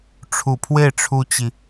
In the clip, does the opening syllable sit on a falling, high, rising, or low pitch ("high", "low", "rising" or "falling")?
low